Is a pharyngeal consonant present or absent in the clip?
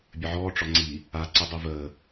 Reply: present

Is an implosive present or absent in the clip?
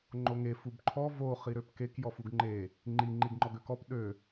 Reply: present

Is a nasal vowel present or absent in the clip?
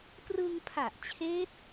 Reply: absent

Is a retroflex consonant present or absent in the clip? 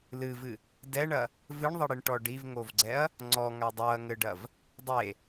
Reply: present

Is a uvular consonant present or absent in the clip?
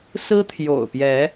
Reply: absent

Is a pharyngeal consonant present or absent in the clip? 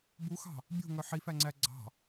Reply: present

